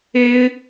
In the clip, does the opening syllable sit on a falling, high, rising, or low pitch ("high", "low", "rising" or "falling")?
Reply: high